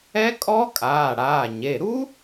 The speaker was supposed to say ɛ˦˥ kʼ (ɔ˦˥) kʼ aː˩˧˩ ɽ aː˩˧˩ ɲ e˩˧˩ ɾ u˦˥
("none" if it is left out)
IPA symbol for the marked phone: ɔ˦˥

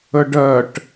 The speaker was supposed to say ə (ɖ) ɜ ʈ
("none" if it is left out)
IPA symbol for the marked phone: ɖ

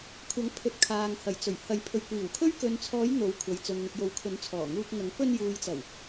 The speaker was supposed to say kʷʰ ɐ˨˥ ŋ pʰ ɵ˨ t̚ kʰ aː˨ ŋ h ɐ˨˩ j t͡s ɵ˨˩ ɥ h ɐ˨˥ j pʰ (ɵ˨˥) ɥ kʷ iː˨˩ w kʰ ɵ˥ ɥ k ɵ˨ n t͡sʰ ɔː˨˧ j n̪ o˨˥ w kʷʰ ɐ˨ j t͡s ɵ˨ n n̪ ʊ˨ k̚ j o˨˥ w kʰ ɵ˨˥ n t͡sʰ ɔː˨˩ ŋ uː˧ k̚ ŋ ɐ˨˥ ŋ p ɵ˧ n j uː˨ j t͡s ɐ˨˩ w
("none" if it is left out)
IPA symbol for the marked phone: ɵ˨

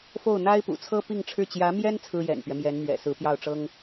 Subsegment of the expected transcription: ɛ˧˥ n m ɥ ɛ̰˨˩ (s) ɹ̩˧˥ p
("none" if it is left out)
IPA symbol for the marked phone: s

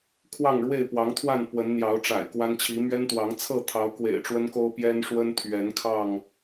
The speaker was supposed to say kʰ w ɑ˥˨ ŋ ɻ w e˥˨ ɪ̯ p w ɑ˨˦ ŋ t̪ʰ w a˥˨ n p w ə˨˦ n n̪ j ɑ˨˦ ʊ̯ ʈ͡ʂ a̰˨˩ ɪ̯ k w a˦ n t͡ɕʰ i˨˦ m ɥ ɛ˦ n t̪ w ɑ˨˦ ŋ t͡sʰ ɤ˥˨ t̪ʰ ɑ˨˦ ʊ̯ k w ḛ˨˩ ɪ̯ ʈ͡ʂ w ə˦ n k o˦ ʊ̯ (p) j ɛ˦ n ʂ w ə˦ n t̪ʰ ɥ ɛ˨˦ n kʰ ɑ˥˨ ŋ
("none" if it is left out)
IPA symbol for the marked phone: p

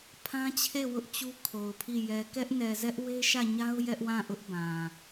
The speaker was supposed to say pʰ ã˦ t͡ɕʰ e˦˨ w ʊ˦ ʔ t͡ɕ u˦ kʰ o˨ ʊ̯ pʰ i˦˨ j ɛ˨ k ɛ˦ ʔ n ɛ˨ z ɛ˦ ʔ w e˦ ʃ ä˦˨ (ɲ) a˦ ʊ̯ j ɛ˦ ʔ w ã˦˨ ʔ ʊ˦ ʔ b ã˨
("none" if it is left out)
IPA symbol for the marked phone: ɲ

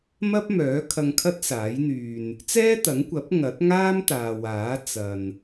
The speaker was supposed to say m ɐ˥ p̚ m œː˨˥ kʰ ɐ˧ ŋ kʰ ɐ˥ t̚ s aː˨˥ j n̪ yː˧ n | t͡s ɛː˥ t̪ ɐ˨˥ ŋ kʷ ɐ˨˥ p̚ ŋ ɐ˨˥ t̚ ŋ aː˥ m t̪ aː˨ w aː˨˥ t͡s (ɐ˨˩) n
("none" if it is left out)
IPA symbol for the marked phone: ɐ˨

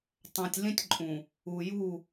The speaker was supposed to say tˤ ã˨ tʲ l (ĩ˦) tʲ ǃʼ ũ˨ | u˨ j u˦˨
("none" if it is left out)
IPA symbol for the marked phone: ĩ˦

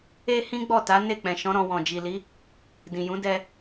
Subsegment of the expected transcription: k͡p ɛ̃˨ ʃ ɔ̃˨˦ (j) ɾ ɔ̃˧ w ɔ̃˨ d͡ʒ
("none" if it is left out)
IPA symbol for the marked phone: none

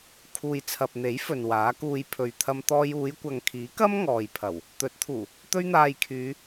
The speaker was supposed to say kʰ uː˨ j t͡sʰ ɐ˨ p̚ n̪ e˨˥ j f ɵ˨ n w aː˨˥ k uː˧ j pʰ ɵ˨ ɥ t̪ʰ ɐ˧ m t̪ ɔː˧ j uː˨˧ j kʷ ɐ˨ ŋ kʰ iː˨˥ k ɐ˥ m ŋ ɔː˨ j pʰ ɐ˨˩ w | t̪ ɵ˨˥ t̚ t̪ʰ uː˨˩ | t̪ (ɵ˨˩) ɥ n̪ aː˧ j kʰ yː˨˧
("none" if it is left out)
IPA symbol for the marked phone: ɵ˥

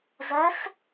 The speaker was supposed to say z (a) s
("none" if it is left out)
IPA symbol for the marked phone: æ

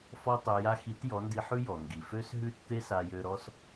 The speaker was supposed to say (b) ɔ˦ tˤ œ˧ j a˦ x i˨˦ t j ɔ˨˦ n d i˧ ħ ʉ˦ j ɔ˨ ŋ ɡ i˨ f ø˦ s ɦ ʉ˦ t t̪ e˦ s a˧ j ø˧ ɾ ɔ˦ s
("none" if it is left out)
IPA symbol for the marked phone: f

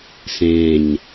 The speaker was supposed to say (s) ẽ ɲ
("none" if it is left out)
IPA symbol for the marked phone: s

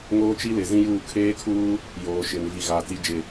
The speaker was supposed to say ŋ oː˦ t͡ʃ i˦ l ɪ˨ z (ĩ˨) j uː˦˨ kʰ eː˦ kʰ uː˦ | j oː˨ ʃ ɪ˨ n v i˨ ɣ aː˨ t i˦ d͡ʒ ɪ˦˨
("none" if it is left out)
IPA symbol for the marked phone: ĩ˦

